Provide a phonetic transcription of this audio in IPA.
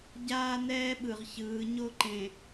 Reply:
ɟ aː˦ n ɛː˦ ɓ ɯ˨ ʁ ç ɯː˨˦ ɲ o˦ ǃ ẽ˨

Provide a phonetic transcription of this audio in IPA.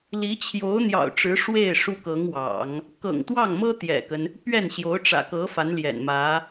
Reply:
l i˧˥ t͡ɕʰ j o˧˥ ʊ̯ n̪ j ɑ̰˨˩ ʊ̯ ʈ͡ʂ ɻ̩˧˥ ʂ w e˥˩ ɪ̯ ʂ u˥ k ɤ˧˥ ŋ w ɑ̰˨˩˦ ŋ | k ɤ̰˨˩ ŋ t̪ w ɑ˥˩ ŋ m ɤ˥ t̪ j ɛ̰˨˩ k ə˦ n | p ɥ ɛ˥˩ n ɕ j o˧˥ ʊ̯ ʈ͡ʂ ä̰˨˩ k ɤ˧˥ f a˧˥ n l j ɛ̰˨˩ n m ä˧˥

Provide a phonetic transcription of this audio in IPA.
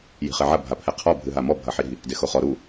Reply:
j i̤ χ e ʕ ɐ bʱ a pʰ ɛ qʰ ɔ bʱ ɨ ɦ a m ɔ bʱ ɐ ħ i ɾ i̤ | d e x o χ ɔ ɾ u

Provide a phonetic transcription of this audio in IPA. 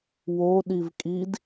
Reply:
w o ɗ i v kʼ i d

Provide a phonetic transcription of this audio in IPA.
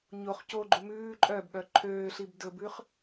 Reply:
ɲ o χ c o ɡ͡ǃ u m ʉː ǃʼ œ b ɠ œ ǃʰ øː ɬ i b d ɵ b ʉ χ

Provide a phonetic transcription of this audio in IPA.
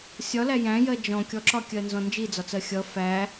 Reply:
sʲ ɒ l æ j æ̃ j ɜ d͡ʒ ɔ̃ kʲ ɔ ǁ ɒ kʲ ɜ n z ɔ̃ n d͡ʒ i d͡z ɒ t͡s ɜ xʲ ʌ f æ

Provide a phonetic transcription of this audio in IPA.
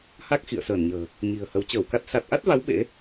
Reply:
h a˦˥ k̚ x ḭ˧˨ ə̯ s əː˧˩ n ɲ ə̤ː˨˩ | ɲ i̤˨˩ ə̯ h ə˨˦ w t͡ɕ əː˧˩ w k a˦˥ t̚ s a˨˩ t̚ ʔ a˦˥ t̚ v a˨˦ w ɓ ḛ˧˥

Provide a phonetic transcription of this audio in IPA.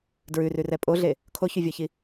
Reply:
d ɹ ʉ r ʉ r ɛ pʼ o ɮ e | kʰ o ç y vʲ ɔ ç i

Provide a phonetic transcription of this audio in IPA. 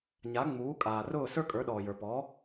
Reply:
ɲ a˩˥ ŋ͡m uː˩˥ kʼ aː˩ r ʊː˥˩ s ə˞˥ kʼ ə˞˩˥ ɗ ɔː˩ j ə˞˩ p ɔː˩˥

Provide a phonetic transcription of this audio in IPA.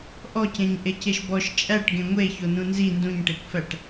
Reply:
ʔ ɔ c ẽ ɲ ʔ e c e ʃ b ɔ ʃ t͡ʃʼ æ ʈ ɡ ẽ ŋʷ e ç o n ũ n z i n d ũ ɲ ʈ e kʷ f æ ʈ

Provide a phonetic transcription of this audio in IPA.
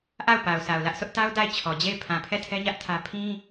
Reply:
ʔ a˦˨ ʊ̯ p a˨ ʊ̯ sʰ a˨ ʊ̯ l ä˦ ʔ sʰ ʊ˦ ʔ t a˦ ʊ̯ d a˦˨ ɪ̯ t͡ɕʰ ɔ˨ d͡ʑ e˦˨ ɪ̯ pʰ ã˨ pʰ ɛ˦˨ tʰ ɛ˦ ɲ ä˦ ʔ tʰ ä˦ pʰ ĩ˦

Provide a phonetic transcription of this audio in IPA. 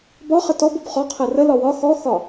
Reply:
b ɒ χ ə t ɔ b u b χ ɔ qʰ ɛ r ə l ɒ w ɒ x ɔ x ɒ

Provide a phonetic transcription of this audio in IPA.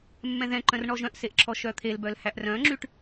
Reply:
mː ɛ̃ ð ɛ̃ ǃ œ̃ r ɳ ɔ ʒ œ̃ ʔ s e ʔ ǁʰ ɔ ʃ œ t̪ʰ e l b œ l h æ ʔ r œ̃ ŋ͡ǁ y ʈ

